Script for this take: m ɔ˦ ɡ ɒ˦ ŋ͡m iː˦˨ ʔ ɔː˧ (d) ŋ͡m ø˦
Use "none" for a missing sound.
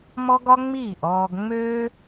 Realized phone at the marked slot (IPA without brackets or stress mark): ɡ